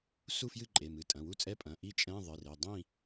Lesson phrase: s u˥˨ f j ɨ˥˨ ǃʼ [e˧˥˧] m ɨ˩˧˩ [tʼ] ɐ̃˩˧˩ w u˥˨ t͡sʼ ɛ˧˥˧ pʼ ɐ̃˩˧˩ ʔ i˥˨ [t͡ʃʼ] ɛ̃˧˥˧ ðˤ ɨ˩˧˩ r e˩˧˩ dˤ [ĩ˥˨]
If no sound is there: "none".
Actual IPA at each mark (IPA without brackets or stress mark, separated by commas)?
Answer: e˩˧˩, tʼ, t͡ʃʼ, ĩ˥˨